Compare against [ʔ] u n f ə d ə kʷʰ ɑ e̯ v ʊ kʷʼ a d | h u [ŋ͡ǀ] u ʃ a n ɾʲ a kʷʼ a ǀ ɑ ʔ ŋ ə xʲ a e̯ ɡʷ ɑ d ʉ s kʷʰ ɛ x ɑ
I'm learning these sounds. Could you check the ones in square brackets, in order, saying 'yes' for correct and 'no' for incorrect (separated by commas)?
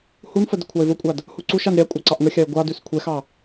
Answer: no, no